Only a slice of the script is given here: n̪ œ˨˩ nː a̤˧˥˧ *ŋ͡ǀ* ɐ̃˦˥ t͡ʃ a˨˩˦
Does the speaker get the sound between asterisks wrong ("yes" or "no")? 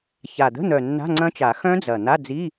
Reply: no